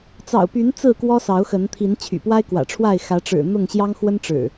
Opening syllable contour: low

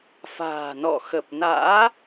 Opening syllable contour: low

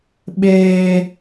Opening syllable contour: high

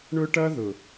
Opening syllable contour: high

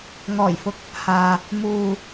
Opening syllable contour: low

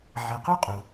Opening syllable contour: low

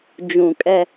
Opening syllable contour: low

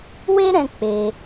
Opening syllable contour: high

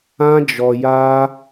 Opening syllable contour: high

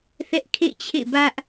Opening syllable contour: high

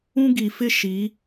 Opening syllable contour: high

